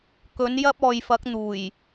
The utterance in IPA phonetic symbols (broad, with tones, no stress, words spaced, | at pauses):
kɵ˨˥njɐ˥p̚ɔː˨j fɐ˨˥k̚n̪uː˨˩j